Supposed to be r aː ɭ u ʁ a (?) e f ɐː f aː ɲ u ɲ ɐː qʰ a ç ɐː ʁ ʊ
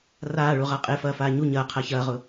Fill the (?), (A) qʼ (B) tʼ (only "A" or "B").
A